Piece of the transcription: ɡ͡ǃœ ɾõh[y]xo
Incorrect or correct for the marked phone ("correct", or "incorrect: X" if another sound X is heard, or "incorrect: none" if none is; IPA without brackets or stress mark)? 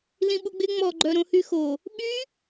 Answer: correct